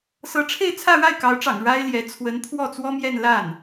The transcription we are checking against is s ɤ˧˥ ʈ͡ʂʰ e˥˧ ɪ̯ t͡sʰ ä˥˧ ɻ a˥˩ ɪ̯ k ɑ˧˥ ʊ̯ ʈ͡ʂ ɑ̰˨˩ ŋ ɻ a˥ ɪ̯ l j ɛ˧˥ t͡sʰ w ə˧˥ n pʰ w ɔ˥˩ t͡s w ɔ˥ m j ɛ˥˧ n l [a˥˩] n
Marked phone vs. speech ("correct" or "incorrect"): correct